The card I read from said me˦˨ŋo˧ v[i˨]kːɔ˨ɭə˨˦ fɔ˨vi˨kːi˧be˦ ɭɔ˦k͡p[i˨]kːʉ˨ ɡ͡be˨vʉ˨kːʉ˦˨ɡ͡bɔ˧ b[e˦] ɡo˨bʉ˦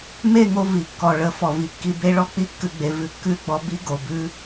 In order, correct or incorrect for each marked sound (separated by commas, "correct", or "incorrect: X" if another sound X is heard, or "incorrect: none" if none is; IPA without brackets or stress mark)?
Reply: correct, incorrect: i˧, incorrect: i˦